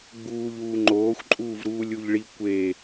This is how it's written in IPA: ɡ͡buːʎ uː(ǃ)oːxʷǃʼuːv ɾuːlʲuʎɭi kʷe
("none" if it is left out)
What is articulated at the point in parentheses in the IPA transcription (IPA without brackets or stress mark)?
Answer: ŋ͡ǃ